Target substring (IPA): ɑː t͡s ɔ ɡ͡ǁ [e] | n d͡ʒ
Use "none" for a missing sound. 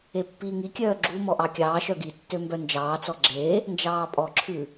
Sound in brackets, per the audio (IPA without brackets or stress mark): e